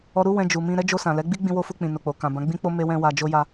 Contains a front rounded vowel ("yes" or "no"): no